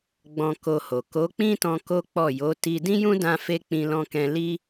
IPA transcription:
ɡ͡b ɔ̃˧ k o˧ h o˨ k o˨˦ k͡p ĩ˦ t ɔ̃˧ k o˦ k͡p ɔ˦˨ j o˨˦ t i˧ d ĩ˦ j ũ˦ d ã˧ f e˧ k͡p ĩ˧ l ɔ̃˧ k ɛ̃˧ l i˧

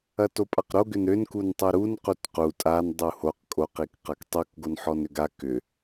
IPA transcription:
ɐ t o pʼ a q ɾ o ɡ ʏ n ɾ ʏ n k u n tˤ u ɾ u n q u t q u tʼ a n dˤ u h o q kʼ o q i k q a k tˤ u k ɡ o n ħ ɔ n ʏ ɡ a k ʏ

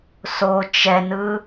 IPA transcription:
s o t͡ʃ ɛ n ɯ

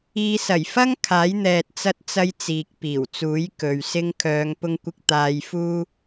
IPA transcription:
iː˨˧ s ɐ˨˩ j f ɐ˥ ŋ kʰ aː˨˥ j n̪ ɛː˨ t̚ t͡s ɐ˧ t̚ t͡s ɐ˧ j t͡s iː˨ k̚ p iː˨˩ w t͡s uː˨˥ j k ɵ˨ ɥ s ɪ˧ ŋ kʰ œː˨˧ ŋ p ʊ˧ ŋ kʷ ɪ˧ k̚ t̪ aː˧ j f uː˥

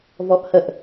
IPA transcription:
v ɔ ʔ h ə ʔ

